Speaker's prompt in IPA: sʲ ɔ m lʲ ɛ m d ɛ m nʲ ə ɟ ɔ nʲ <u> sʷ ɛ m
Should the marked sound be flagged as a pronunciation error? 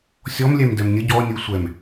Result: no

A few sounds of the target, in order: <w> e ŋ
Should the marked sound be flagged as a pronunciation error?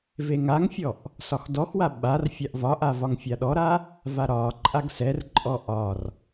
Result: yes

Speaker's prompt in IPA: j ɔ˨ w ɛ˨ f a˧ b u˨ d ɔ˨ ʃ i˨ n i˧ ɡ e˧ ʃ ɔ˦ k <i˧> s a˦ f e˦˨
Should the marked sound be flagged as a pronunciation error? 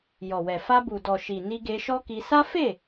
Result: no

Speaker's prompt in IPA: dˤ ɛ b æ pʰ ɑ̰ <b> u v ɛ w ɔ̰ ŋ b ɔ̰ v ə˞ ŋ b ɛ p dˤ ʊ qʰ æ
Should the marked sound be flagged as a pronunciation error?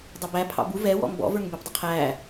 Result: no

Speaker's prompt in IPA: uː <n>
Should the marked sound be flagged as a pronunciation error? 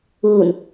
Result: no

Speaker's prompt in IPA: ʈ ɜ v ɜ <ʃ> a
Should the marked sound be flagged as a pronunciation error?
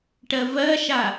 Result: no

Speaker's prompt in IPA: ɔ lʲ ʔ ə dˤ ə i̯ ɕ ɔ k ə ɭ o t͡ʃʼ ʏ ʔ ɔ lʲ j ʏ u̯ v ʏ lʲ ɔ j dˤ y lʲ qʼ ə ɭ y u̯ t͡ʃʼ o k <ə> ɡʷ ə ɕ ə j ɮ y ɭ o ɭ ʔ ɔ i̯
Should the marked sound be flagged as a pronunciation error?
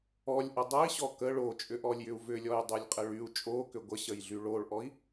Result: yes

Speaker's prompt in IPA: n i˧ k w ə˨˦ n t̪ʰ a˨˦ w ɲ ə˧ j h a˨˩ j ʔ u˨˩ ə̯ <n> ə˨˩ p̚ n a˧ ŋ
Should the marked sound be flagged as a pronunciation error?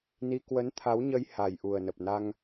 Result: no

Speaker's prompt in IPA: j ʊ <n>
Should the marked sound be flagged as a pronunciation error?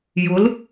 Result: yes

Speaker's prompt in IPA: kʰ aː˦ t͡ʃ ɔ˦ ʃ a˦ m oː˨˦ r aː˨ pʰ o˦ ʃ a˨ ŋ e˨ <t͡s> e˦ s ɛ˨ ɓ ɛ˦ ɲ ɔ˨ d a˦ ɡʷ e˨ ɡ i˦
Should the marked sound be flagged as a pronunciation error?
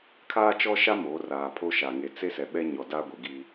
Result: no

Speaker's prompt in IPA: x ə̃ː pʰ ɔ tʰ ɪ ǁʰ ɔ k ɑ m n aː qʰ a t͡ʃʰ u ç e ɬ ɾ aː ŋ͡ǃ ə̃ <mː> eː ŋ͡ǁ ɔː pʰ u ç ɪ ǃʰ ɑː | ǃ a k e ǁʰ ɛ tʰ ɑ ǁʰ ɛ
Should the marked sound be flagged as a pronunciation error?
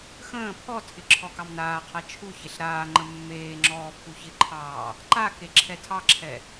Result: no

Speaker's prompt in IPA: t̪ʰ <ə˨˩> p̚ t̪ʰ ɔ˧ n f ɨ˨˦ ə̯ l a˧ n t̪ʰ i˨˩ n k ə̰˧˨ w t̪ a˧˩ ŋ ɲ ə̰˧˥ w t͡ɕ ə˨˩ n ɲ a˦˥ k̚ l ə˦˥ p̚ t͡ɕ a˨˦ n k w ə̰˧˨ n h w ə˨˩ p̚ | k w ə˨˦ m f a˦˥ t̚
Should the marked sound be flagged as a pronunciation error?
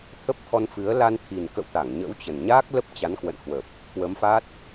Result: yes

